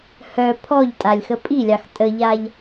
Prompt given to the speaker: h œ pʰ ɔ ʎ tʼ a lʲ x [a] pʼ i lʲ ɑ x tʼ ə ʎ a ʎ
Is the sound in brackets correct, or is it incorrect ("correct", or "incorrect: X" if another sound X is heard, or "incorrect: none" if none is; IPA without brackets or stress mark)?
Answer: incorrect: ə